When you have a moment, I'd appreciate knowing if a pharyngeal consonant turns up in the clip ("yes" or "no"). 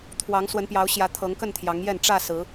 no